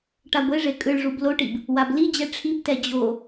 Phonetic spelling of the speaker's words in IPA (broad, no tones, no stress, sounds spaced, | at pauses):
ʈ a ɡʷ e ʐ e kʼ ɯ ɭ ʐ u b l o ʈ i b | w a b l i d͡ʑ ɛ ʈ͡ʂʰ i b t ɛ d͡ʑ o